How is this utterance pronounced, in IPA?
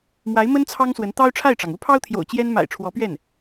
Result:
mwa˧˥ɪ̯mə˥n t͡sʰɑ˥ŋswə˧˥n t̪ɑ˥ʊ̯ʈ͡ʂʰa˥˩ɪ̯ʈ͡ʂɑ˩ŋ u˥pʰɑ˥ʊ̯t̪ʰjo̰˨˩ʊ̯ t͡ɕjɛ˥n ma̰˨˩ɪ̯ ʈ͡ʂʰwɔ˧˥pɥɛ˥˩n

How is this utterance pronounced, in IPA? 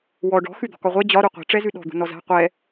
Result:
wɔ ɖɔ̤ xʉd̪ɔ̤kɒʁʷɛ d͡ʑɒ ɾuqʷi̤ ʈ͡ʂɛzʉɗɔ̤ d̪ṳnɔza̤ qʷɛ

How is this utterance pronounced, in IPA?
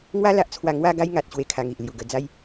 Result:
ŋwa˦la˨ʔt͡sʰwa˧ ŋwa˧ ɡa˦jŋa˨t̚ ɕwe˦kʰa˧ŋi˨ʔ lju˨˩ɡə˧d͡za˦j

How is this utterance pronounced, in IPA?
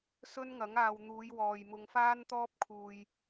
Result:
sɵ˥nŋɐ˨˥ŋ aː˨wn̪uː˨˧jwɔː˨jmʊ˧ŋ faː˥nt̪ɔː˥p̚kʰuː˧j

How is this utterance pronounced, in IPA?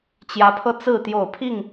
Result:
t͡ɕjä˨˦pʰɤ˧ t͡sɹ̩˥˨ t̪jo˥˨ʊ̯ pʰi˥˨ŋ

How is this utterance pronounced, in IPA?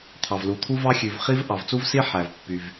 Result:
t̪ʰɑ˩vlu˩t̪ʰu˥vɑ˥ xʲʉ˩v χi˥v ʔɑ˩vt͡su˥vsi˥ ħæ˩vpːy˩v

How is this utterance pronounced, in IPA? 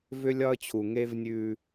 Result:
vʏ˦lʲɒ˦ə̯t͡ɕʰu˨ ŋe˦vnʲʉ˦

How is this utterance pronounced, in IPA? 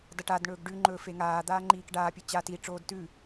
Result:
dɐʈadɳɵːɡ ɖʉŋ͡ǃɵː feŋaːd̪aː ŋ͡ǃiːkɖaːpʲɨ t͡ɕa tiʈ͡ʂoːd tʉ

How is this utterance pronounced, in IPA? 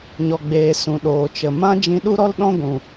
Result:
ɲɔ˨ɡ͡beː˨ sũ˨ ɗoː˨t͡ʃə˨ mã˦ d͡ʒĩ˧ɗu˦ɾɔ˦l ɗɔ̃˦ɡʷũ˨

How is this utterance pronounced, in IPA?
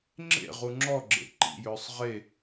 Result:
ŋ͡ǁḛ ʁuŋ͡ǁɔɡ͡ǁḛ ǃḭjɵːsˤ ʁe

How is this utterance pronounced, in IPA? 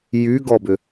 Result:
jyɡɔbʏ

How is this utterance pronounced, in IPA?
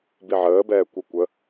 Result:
biʕəːbɛː kʷə kʷə

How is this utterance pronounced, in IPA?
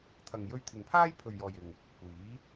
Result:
t̪ʰɐ˨ŋ jɵ˧ɥt̪ʰɪ˨ŋpʰaː˥j pʰɵ˨ɥjɔː˨jɪ˨ŋ | kʷiː˨˥

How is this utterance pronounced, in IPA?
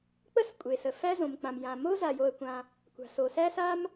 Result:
k͡pə˥skʷʼe˩sə˩ fæ˥ zõ˩mk͡pã˩mjã˩ mo˥za˩jo˩ə̯kʷã˩ | kʷa̤˩so˩sæ˥sa˥m

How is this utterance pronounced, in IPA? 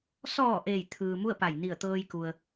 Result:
sɔː˧˩ ʔeː˧˩j t̪ʰɯː˩ mu˥˨ə̯pa˧˩j ni˧˩ə̯t̪ɤː˧jku˩ə̯

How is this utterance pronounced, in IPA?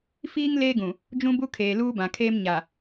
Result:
fiː˦ŋ leː˦ɡũ˨ | d͡ʒũ˦bu˦kʰeː˨ luː˦bã˨kʰeː˦m ɲa˨

